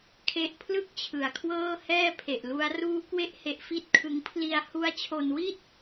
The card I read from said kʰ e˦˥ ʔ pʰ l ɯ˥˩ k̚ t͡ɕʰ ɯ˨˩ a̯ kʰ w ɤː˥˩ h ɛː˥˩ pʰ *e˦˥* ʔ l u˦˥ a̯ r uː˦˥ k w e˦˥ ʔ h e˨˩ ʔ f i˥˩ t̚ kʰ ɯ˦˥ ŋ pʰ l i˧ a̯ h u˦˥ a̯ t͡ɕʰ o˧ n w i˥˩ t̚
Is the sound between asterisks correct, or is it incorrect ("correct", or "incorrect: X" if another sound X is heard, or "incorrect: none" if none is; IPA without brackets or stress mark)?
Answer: incorrect: e˨˩